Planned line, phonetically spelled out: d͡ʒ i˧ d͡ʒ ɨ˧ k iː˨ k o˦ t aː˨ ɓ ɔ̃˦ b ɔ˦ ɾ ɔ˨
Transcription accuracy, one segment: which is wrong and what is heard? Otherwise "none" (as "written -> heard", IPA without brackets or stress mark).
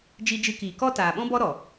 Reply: o˦ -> ɔ˦